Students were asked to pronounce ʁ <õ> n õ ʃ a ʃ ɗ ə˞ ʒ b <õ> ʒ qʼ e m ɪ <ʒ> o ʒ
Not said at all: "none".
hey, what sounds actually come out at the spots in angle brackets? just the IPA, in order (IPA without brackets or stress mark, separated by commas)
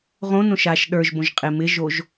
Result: õ, õ, ʒ